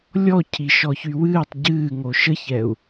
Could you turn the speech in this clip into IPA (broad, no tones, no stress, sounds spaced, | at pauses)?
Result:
lʲ ɔ cʰ i ʃ ɔ ç y w ɨː tˤ ɟ ɨː ŋ o ʃ ə ç ɛ u̯